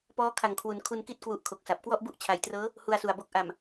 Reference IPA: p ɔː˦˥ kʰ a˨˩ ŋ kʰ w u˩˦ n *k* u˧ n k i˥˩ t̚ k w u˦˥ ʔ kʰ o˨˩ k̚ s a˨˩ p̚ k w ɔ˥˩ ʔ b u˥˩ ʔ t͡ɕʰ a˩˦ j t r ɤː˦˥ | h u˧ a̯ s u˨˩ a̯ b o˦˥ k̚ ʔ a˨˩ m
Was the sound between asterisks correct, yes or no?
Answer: no